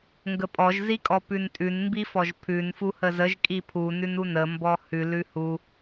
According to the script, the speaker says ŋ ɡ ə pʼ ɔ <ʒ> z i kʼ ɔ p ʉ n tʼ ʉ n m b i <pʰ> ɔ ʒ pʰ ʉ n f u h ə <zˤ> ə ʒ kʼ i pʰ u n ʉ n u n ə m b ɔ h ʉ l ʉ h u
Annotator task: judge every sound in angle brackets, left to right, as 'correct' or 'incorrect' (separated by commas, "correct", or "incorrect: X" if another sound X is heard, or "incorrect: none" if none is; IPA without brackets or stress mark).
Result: correct, incorrect: f, incorrect: z